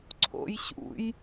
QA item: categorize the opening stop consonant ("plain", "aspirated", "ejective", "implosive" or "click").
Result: click